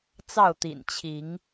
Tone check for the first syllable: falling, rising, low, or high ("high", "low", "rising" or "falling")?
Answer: falling